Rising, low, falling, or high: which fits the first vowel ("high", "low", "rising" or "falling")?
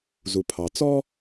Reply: low